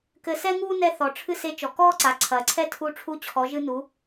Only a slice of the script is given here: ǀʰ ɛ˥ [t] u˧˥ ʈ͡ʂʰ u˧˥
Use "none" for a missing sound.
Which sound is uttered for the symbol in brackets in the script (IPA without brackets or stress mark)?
tʰ